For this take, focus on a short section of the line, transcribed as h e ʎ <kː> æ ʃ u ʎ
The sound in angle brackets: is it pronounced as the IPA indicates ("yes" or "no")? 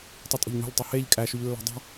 no